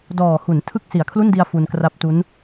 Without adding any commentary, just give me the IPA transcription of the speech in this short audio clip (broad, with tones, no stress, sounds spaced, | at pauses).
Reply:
d ɔː˨˩ h u˩˦ n tʰ ɯ˨˩ k̚ s i˩˦ a̯ kʰ l u˥˩ n d i˧ a̯ f u˧ n k r a˦˥ p̚ t u˦˥ n